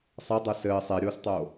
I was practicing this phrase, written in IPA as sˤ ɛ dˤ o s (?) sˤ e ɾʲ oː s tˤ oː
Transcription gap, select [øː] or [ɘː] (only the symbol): ɘː